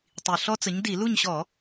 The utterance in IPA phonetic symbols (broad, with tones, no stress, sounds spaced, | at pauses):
tˤ i˨˩ ɬ ɔ˦˥ t͡s ə˨˥ ɲ d i˧˩˧ l u˥˨ ɲ ɕ ɔ˧˩˧